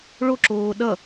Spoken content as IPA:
ɭ o ǁ oː ɗ ʌ

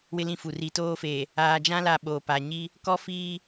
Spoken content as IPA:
w ɪ˦ l ĩ˦˨ f u˨ r i˨ t oː˦ f eː˨ | aː˨ d͡ʒ ã˦ l a˨ ɓ oː˨ p a˨ ɲ i˦ | k ɔ˦ f iː˦

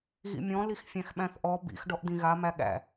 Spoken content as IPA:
ɣ ḭ mʲ ɔ̃ l i x fʲ æ̃ x ɓ æ̃ θ ʔ ɔ b ḭ x ɖ ɔ ʔ d ĩ ɣ a m æ ɠ æ̰

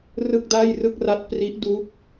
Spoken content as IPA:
r ɯ˥˩ k̚ d aː˥˩ j r ɯ˥˩ k̚ r a˦˥ t̚ p r i˦˥ ʔ d u˦˥ k̚

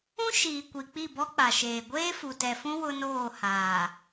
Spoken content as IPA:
ũ˦ ʃ iː˨ kʷ i˨ k͡p i˦˨ b ɔ˦ k͡p a˨ ʃ eː˨ ɡʷ eː˦ f u˨ t ɛ˨ f ũ˦ w ʊ˦ n oː˦˨ h aː˨

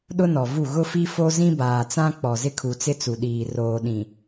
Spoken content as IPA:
ɗ ʊ˦ n ɔ˨ v u˦˨ ɣ ʊ˦ f i˦ f o˦ z ĩ˦ b aː˨ t͡s ã˦ k͡p ɔ˨ z ɪ˦ kʰ u˨ t͡s ɪ˦ t͡s u˨ ɗ iː˨ r oː˨ ɗ ĩ˨

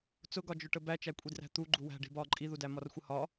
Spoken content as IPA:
t͡s ʊ ɡ ɒ d͡ʒ ʊ ʈ ə b æ t͡ʃ æ kʷʼ i d r æ̤ t̪ u ɡ͡ǃ u w æ̤ ɖ i̤ b ɒː ǃʼ i ð u d æ m ɒ r xʷ ə h ɒ

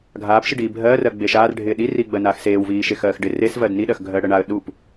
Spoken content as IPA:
ɡʱ aː p ʃ i ɖ iː bʱ ɜː r ɜ ɡ͡b e ʃ aː r ɖʱ ɪː ɗ i r iː ɡ͡b ɜ n aː x s eː w v iː ʃ e x ɜː x ɖ ɪ r e s v ɜ d n i ɗ ɜ x ɡʱ ɜː ɽ ɜ ɳ a ə̯ ɗ u p

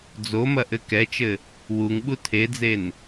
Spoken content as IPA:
d͡z o m ɐ ʔ ɘ k ɛ t͡ʃ ɘ | w u ŋ ɓ u tʰ e d͡z e n

